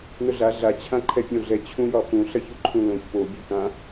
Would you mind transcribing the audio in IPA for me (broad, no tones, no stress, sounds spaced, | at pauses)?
n ʊ ɮ a ɮ a t͡ɕʰ ã ǃʰ ɛ pʲ õ ɮ ɛ t͡ɕʰ ũ j ɒ x ũ ɬ ɐ ç u ǃʰ ũ l õ ç p o bʲ u k ã